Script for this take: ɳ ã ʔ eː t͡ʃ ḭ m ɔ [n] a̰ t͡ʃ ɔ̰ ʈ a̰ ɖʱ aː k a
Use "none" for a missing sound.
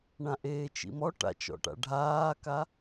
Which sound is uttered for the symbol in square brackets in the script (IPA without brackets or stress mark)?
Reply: ʈ